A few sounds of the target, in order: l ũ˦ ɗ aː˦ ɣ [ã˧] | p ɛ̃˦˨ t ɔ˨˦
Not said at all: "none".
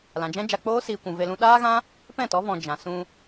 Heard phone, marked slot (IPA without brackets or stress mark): ã˦